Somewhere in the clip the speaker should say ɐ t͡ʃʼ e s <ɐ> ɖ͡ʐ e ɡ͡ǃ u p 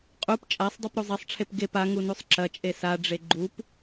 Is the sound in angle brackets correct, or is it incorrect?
incorrect